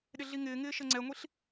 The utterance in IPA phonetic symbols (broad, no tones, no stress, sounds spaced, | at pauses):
ɗ ɪ ɮ i ŋ ɪː ŋ ɪː ʃ ə ŋ͡ǀ ɛ ŋʷ i ɬ